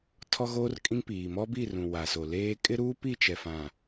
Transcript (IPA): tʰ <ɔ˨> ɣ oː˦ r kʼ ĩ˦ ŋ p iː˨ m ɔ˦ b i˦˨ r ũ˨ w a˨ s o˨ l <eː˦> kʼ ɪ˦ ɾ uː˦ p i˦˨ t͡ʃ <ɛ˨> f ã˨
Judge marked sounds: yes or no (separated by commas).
no, yes, yes